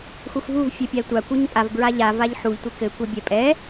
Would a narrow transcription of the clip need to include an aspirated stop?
no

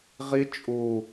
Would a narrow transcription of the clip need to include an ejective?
yes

